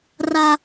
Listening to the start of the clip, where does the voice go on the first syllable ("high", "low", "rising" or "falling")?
low